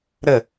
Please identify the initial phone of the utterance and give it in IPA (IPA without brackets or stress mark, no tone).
ɾ